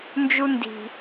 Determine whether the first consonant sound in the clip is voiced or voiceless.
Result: voiced